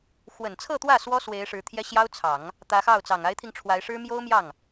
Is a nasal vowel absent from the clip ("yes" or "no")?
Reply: yes